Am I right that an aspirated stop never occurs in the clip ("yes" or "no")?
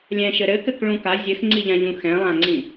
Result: yes